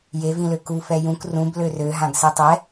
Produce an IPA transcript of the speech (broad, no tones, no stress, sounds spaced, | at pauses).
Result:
j e v ĩ l ø k u f ɛ j ũ k r ũ b l ø r ø ɦ ã ɡ s e tˤ ɛ